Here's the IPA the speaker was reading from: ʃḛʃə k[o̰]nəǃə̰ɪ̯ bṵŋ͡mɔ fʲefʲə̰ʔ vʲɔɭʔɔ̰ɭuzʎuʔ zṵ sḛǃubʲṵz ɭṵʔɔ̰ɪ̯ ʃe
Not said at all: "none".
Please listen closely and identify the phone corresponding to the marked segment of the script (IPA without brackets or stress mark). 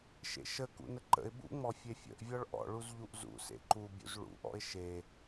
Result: ṵ